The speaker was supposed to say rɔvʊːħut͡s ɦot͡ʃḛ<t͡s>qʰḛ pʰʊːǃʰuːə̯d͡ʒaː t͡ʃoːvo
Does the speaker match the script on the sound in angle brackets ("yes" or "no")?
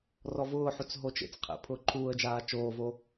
yes